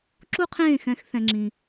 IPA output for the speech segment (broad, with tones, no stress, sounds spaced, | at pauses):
ǁ u˦ qʰ ẽː˦˨ x ɛ̃˧ x θ ɛ̃˦ ŋ͡ǁ ĩ˧